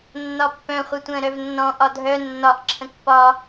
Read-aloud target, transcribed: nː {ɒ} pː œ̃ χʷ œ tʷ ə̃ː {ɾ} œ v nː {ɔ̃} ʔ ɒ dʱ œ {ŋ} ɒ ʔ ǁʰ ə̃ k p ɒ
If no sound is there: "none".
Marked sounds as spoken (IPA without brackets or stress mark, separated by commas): ɒ, ɾ, ɔ̃, nː